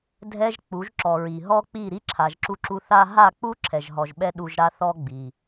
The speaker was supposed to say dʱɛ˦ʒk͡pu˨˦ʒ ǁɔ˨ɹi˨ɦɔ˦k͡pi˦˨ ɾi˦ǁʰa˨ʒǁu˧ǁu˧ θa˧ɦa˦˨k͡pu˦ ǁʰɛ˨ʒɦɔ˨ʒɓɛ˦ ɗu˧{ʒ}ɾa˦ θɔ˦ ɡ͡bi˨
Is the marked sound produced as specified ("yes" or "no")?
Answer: yes